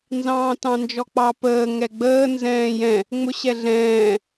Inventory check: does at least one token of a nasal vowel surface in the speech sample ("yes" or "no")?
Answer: yes